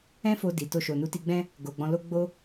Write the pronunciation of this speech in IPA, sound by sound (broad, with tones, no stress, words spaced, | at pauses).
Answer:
ɛ̃˦fo˧ di˨ to˧ʃo˨ nu˨˦ti˧ɡ͡bɛ̃˦ | ɡo˨ɡ͡bɔ̃˧lo˦ ɡ͡bo˦